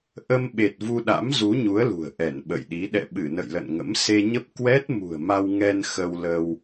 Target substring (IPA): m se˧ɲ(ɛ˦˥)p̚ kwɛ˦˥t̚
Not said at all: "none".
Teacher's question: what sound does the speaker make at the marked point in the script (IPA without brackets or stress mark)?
ə˦˥